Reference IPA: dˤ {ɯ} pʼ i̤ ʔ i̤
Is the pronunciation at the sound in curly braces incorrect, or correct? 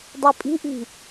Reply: correct